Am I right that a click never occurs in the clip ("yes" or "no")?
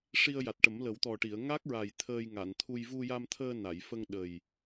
yes